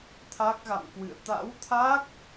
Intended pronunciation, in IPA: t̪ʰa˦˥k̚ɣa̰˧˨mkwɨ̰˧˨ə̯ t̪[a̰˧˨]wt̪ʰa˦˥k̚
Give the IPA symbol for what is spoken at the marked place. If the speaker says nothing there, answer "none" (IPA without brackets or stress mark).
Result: a̰˧˥